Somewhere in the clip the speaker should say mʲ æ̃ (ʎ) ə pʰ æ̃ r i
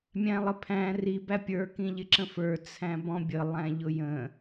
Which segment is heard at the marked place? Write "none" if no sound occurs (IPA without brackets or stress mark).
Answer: lˠ